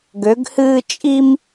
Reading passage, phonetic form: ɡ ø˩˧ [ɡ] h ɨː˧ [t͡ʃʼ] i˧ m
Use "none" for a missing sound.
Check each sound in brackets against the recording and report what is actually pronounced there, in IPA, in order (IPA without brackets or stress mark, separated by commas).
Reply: ɡ, t͡ʃʼ